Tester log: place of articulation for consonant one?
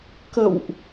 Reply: velar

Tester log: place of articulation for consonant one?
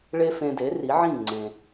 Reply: retroflex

